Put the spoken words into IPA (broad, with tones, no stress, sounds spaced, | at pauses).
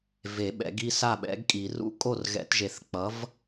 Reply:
v e˨˩˦ ɓ ɛ̰˨˩˦ ɡ i˥˩ s a˥˩ ɓ ɛ̰˨˥ ɡ kʼ i˨˩˦ r ṵ˥˩ kʼ o˥˩ r ɣ ɛ̰˨˩˦ t ʒ e˨˩˦ θ k͡p ʌ˨˥ v